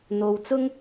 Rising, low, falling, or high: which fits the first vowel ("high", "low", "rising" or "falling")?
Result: low